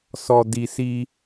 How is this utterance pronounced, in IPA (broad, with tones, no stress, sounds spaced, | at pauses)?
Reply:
s ɔ˨ d i˨ s i˦